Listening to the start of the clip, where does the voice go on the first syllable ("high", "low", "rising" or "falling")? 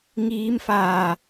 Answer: rising